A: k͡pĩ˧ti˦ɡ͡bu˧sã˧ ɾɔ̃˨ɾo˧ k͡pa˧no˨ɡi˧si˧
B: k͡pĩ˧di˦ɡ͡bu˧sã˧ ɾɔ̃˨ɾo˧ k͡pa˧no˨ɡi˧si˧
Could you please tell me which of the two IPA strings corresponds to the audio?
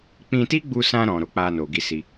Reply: A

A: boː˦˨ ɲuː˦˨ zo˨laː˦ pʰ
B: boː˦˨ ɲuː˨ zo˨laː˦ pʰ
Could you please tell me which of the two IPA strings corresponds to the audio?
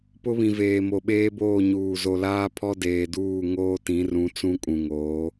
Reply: B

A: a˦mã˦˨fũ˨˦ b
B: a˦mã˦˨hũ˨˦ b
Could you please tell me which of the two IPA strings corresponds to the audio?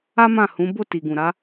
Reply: B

